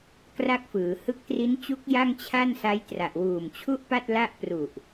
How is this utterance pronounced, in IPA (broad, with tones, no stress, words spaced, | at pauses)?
kra˥˩k̚fɯː˩˦ hɯ˦˥k̚tri˦˥nt͡ɕu˦˥k̚ ja˥˩ŋt͡ɕʰa˥˩nsa˦˥j tra˨˩ʔwuː˨˩mt͡ɕʰu˥˩ʔpa˥˩t̚ la˥˩ʔpru˨˩ʔ